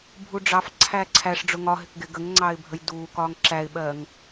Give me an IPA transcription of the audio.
bʱuɖ͡ʐɑfǀʰæː ǀʰæʂɖ͡ʐʊ ŋɒɦɪk ɡɪ ɡəŋŋ͡ǀɑːɪ̯ bʱəjduːkɒːŋ ǁæɪ̯ɓɜːŋ

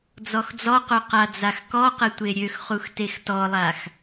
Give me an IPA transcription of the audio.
d͡zɔxd͡zɔqo qad͡zaxkɔqə tʷeɾʲøxχux textɔlˠax

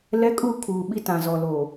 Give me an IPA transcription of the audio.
lɛ˦kʼu˦˨ kʰuː˨ɓi˦tã˨ zɔ˨loː˨

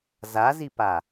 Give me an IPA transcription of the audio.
zazipa

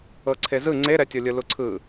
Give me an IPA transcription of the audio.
ɤǀʰezɯ ŋ͡ǀeɾɛtʲolʲɯ luǀʰɯ

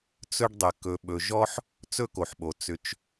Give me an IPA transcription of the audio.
t͡sɵ˦ɖdˤɘ˨ kɵ˨ɓɵ˨ ʒɔ˦ħ | t͡sɵ˦ko˩ħɓo˩ t͡sʏ˨t͡ʃ

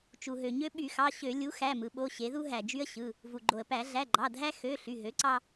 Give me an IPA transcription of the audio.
t͡ʃu˩ɦø˩ɲø˦ ɓy˧˩˧xɑ˩˧˩ɕø˧˩˧ lʲu˩˥xæ˩˧˩mɯ˩˧ɓo˩˧˩ ɕe˩˧ðu˦ ɦæ˩d͡ʒy˦ə̯ɕɯ˩˧˩ | vu˩ɡ͡ǃo˩ə̯pæ˧˩˧ ɮæ˩˧˩ɡ͡ǃɑ˩˧˩dʱæ˦ xø˩˧˩ ɬy˩˧˩ɦø˩˥ǀɑ˦

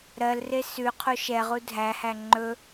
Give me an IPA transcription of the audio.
ɾɜlre sʉ qʰoʃɛʁu dʱæhæ ŋ͡ǃɵ

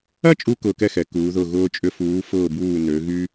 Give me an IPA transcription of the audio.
ɐ˥t͡ʃʼu˧ kʊː˧kɛ˥˧xɛ˩˧ kuː˩˧ðʊ˧˩ɣʊː˧t͡ʃʼʏ˧ fuː˩˧fʊː˧˩buː˧˩ nø˩˧ ɣy˧

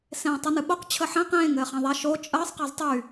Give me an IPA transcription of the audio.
sẽːtˤɨnɨɓoq t͡ɕʰəħɛ̃ qẽːŋ ɘːχɛ̃ðˤæʃ o t͡ʃʼəːsˤ qɛztˤy

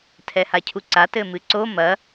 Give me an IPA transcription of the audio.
tʰɛhacʰuǀa tɘmɨǀo mɐ

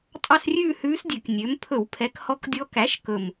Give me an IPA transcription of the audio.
tʼɑ˥˧srʲʉː˥˧hʉː˧˥sdʲø˨˩k nʲø˩˥m pʰɵ˧˩˧wpʰɛ˩˥khɔ˧˥kdʲɔ˧˥ kæ˩˥ʃ kɵ˨˩m

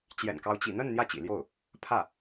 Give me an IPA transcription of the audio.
t͡ɕjɛ̰˨˩nkɑ˧˥ʊ̯ t͡ɕḭ˨˩n̪ə˥˧n n̪jä˥˩t͡ɕḭ˨˩ljo˥˩ʊ̯ | pʰä˥˩

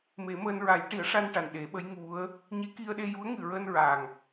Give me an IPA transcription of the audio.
me˨˩˦məː˧n ɹa˨˩˦jʈi˨˩˦ə̯ʂa˧n ʈa˨˩nɗe˨˩˦ɓə˧˥j ŋu˧˥ə̯ | ɲe˧˥ki˧ə̯ɗe˧ ju˧˥ə̯ŋɨ˨˩ɹəː˧n ɹa˨˩ŋ

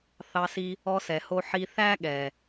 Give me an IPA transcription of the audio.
θɑ˧si˧ | ɔ˧sɛ˩ho˧ ħi˧ θæ˥ɠɛ˩

